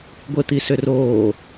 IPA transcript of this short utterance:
ɡʷ e t̪ i s ʏ r oː

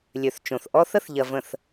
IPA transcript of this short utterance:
lʲ ø˨ θ t͡ʃ õ˨ θ ʔ ɔ˦ θ ə˦ θ ʎ ɐ˨ v ə̃˨ θ

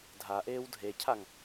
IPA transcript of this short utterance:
dʱ a ʔ eː w dʱ e cʰ a ŋ

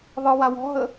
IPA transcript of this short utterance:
ðˤ ɨ w a w ɔ̤ ɦ ə

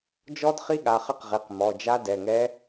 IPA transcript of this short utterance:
d͡ʒ ɔ˦˥ d χ i˦˥ ɠ a˩˧˩ χ ɘ˦˥ q ʁ i˩˧˩ q m ɔ˩˧˩ d͡ʒ a˦˥ d ɛ˩˧˩ ŋ ɛ˦˥

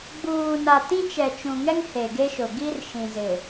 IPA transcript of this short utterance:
ɡ͡b uː˨ n a˨ t ĩ˦ t͡ʃ ɛ˨ t͡ʃ ũ˨ ŋ ɛ˦ ŋ h e˨ ɡ e˦ ʃ ʊ˨ ɡ i˦ r ʃ ĩ˨ z ɪ˨

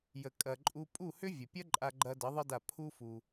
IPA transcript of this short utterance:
j ə˨ kʼ ɐ˨ ǃʼ u˧ pʼ u˦˨ h ʏ˦ vʲ ə˨ pʲ ɐ˦ ǃʼ a˧ ɡ͡ǃ ɐ˧ d ə˨˦ ðˤ ə˦ d a˦˨ pʰ u˦ f u˧

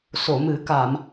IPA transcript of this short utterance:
s o˨˩˨ m ɨ˨˩˦ k a˨˩˨ m

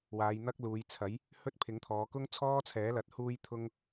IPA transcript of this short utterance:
w aː˨˧ j n̪ ɐ˥ k̚ l uː˨˧ j t͡sʰ ɐ˨˥ j | h ɵ˥ t̚ pʰ ɪ˨˥ ŋ t̪ʰ ɔː˨˧ k ʊ˥ ŋ t͡sʰ ɔː˥ t͡sʰ ɛː˨˥ l ɐ˨˥ t̚ h uː˥ j t̪ʰ ʊ˥ ŋ

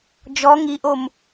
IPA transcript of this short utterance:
d͡ʒ ɔ ŋ i ʔ o m

